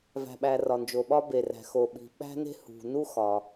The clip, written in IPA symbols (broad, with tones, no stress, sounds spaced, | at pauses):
v æ̤˩ ɓ æ˩ r ɒ˩ n d͡ʒ o˩ ɓ ɒ˥ b e˩ r æ̤˩ x o˩ ɓ i̤˩ ɓ æ̤˥ n e̤˥ h ṳ˩ n u˥ x ɒ˩